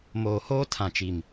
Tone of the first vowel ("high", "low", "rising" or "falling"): low